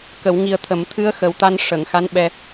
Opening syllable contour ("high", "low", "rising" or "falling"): low